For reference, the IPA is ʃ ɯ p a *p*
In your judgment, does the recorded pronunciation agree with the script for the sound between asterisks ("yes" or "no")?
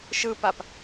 yes